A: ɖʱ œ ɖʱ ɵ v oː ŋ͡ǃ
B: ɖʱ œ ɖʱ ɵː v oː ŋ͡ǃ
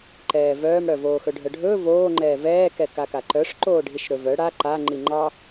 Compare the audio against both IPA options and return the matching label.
B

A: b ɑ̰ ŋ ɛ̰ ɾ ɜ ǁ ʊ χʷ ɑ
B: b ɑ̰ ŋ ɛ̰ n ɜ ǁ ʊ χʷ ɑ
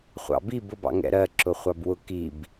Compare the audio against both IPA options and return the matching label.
A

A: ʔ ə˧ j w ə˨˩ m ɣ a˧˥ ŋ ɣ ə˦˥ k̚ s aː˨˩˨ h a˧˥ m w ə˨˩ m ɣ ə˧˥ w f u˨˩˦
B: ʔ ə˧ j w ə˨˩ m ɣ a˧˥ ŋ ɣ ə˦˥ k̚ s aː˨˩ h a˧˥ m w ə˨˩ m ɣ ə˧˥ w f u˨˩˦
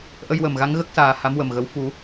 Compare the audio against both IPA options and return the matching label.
B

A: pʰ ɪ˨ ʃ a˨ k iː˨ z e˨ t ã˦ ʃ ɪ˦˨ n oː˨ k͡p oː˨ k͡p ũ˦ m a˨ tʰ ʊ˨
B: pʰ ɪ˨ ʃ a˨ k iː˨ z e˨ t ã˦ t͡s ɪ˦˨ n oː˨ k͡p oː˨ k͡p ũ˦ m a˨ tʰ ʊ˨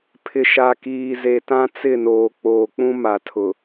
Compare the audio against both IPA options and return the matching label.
B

